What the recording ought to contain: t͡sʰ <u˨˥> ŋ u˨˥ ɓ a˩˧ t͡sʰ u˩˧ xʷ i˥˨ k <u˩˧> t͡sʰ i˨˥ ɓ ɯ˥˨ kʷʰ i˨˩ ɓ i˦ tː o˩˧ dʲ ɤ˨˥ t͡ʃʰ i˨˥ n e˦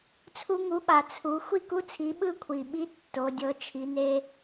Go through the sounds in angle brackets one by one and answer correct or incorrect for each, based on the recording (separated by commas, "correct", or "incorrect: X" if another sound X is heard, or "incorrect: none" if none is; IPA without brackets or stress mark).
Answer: incorrect: u˦, incorrect: u˦